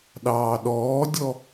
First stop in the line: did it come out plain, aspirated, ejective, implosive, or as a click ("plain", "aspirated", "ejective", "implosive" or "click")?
implosive